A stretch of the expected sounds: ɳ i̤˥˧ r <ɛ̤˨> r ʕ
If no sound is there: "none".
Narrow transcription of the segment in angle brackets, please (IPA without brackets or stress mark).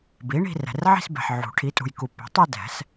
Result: ɛ̤˨